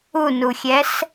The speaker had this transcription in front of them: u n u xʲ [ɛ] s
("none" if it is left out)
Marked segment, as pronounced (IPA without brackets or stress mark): ɛ